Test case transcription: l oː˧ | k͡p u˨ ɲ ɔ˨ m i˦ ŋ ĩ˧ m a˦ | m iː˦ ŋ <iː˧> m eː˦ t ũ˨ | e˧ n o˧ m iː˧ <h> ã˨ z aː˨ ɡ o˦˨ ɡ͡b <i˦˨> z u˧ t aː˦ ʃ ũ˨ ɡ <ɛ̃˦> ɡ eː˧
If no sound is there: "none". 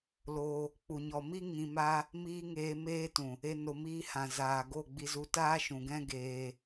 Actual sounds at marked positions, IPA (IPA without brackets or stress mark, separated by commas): eː˧, h, i˧, ɛ̃˦